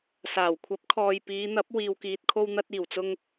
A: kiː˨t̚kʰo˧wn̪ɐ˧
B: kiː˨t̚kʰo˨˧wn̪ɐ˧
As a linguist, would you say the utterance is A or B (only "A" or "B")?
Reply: A